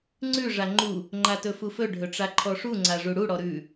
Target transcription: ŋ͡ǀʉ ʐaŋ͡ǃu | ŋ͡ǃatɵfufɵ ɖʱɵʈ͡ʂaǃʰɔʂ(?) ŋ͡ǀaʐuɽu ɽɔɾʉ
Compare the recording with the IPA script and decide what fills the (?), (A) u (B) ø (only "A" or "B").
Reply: A